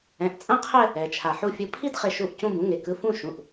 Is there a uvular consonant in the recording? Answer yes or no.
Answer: yes